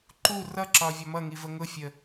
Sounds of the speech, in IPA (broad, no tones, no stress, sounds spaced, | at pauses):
ǃ u r ʌ ǁ ɒ vʲ ɒ m ʌ ŋ i v ə ŋ ʊ fʲ ə